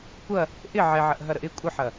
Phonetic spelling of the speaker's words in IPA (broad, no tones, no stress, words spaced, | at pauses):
kʷɐ | ʔɪ ʕɛʕɐʔɦɐɾəʔ ɪ kʷʼəħɐ